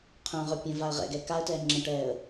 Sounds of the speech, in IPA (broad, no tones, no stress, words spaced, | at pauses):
qʰœ̃ʁœ pʲə̃v aə̯ʁɛ̰ɡɛ kaə̯tɛː ŋ͡ǁə̃ʈɛːə̯